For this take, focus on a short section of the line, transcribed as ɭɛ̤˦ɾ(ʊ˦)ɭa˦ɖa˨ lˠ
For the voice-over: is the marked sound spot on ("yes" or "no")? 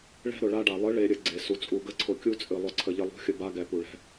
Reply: no